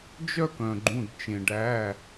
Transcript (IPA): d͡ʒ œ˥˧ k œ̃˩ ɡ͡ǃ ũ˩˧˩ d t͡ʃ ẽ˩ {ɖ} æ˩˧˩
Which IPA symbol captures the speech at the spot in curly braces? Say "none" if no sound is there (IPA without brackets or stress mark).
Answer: ɖ